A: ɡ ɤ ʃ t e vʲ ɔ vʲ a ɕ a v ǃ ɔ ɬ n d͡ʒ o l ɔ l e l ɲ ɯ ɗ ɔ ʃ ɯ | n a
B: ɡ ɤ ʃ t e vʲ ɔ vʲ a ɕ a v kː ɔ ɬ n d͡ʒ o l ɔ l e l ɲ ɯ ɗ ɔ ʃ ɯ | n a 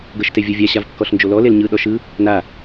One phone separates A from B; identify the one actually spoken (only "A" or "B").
B